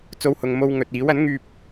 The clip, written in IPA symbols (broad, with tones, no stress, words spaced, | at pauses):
t͡so˧whʊ˨ŋ mo˧wŋɵ˨t̚ iː˨˥w ɐ˨˥nŋyː˧p̚